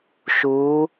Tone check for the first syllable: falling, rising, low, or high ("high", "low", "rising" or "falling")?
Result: rising